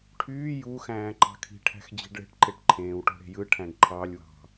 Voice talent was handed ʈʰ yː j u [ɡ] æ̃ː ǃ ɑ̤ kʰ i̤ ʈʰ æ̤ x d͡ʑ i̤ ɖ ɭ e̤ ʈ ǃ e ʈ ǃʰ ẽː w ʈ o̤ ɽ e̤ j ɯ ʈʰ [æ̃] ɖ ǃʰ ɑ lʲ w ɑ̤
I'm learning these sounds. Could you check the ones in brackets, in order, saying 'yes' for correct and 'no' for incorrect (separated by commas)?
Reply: no, yes